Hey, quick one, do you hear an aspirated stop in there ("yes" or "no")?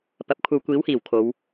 yes